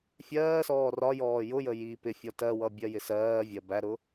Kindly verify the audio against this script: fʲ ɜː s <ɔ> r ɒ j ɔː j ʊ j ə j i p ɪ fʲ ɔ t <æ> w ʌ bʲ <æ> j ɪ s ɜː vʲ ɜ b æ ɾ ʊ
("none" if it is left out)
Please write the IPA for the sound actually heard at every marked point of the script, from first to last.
ɔː, ɜ, ɜ

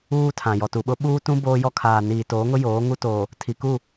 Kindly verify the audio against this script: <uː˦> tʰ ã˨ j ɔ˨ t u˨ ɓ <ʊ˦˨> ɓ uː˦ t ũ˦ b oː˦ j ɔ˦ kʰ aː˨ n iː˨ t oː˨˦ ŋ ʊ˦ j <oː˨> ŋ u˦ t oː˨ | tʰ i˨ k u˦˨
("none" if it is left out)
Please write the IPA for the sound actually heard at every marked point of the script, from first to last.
uː˦, ʊ˦, oː˨˦

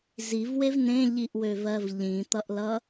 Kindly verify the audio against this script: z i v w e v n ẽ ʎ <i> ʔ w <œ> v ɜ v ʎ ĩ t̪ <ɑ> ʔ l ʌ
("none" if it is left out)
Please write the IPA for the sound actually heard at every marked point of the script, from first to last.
i, ø, ʌ

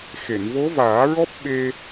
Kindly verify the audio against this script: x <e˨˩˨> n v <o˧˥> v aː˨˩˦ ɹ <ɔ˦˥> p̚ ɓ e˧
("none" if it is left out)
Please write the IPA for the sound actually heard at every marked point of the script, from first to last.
e˨˩˨, o˧˥, ɔ˦˥

